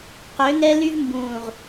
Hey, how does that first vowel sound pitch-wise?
rising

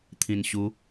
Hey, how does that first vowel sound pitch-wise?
low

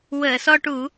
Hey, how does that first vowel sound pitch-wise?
low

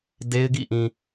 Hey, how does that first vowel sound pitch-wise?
high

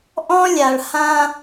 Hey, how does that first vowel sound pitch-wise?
high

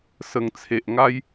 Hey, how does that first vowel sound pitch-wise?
low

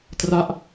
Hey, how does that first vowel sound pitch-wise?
falling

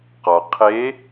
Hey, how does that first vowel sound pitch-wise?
low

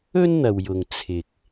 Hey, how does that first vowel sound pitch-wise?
high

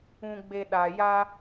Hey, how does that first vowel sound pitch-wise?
low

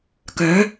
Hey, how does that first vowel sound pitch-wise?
rising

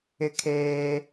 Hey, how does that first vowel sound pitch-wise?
high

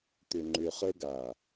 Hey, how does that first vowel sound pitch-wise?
low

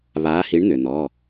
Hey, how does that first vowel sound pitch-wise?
rising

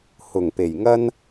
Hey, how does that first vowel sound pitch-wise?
low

